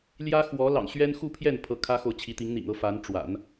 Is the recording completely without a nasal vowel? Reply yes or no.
yes